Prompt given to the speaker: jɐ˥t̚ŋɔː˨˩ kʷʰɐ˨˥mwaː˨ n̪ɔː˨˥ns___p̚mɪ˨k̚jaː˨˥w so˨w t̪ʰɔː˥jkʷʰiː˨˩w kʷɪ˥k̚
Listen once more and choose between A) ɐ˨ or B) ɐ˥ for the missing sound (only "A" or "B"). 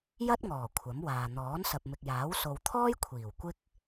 A